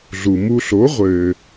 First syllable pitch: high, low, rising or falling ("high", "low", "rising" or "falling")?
low